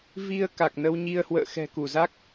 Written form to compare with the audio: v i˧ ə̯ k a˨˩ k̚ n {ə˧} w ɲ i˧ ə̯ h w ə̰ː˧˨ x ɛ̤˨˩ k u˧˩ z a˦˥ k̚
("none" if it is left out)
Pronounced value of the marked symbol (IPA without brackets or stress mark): ə˧